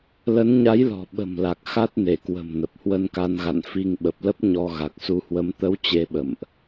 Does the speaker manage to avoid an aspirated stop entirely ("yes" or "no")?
yes